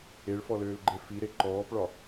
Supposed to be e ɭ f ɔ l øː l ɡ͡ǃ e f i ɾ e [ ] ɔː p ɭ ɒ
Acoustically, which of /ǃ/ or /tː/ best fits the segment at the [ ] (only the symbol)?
ǃ